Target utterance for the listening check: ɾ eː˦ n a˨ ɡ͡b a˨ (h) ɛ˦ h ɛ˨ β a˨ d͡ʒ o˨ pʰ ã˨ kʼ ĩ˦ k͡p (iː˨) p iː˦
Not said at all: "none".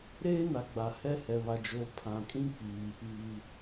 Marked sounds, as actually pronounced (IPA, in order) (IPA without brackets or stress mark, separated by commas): h, iː˨